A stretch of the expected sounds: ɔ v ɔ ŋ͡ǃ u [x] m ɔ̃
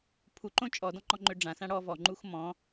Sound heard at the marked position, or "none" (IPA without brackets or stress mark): x